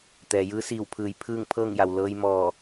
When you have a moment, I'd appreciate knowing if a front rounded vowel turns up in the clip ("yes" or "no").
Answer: no